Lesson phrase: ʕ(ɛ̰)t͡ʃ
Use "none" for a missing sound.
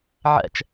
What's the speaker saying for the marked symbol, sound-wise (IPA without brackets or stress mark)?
ɛ̰